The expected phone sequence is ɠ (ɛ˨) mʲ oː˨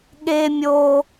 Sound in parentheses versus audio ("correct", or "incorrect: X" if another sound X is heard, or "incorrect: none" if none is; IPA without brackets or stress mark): incorrect: e˨